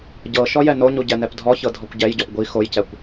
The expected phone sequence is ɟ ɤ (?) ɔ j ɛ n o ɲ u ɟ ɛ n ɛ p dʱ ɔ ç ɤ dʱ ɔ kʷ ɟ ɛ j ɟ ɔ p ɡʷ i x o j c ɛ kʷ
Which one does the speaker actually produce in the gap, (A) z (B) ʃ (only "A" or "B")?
B